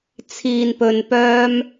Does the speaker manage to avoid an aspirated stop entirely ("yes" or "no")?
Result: no